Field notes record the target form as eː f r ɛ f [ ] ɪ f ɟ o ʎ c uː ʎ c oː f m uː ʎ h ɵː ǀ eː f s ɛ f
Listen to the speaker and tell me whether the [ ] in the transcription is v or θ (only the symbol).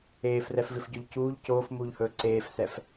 v